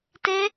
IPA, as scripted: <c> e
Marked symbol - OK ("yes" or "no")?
no